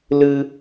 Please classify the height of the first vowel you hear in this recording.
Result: high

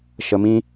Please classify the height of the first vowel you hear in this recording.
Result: mid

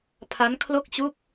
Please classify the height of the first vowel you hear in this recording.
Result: low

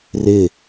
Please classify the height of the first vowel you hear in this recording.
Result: high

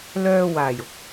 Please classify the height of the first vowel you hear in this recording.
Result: mid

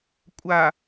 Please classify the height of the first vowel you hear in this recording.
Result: low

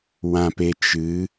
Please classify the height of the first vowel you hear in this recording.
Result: low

